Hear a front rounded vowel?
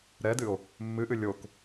no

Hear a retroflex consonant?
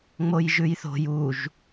no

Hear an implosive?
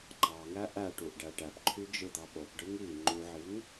yes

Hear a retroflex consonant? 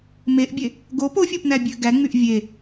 no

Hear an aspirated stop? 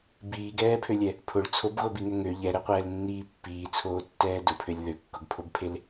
yes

